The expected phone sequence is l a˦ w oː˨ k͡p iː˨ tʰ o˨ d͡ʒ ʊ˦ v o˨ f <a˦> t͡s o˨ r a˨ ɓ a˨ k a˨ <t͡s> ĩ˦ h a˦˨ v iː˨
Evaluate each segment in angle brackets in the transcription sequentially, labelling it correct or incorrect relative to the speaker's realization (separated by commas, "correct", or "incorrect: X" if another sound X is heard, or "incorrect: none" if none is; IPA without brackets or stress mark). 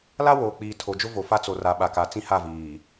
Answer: correct, correct